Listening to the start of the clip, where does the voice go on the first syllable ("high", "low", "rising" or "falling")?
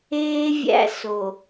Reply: high